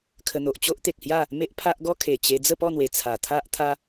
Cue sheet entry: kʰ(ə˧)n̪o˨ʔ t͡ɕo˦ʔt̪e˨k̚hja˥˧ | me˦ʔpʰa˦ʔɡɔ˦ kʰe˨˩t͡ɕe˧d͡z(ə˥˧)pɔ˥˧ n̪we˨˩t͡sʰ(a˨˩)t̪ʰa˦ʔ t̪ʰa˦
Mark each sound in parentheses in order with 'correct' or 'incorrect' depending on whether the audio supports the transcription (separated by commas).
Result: correct, correct, correct